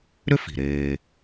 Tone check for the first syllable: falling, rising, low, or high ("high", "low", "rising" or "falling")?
high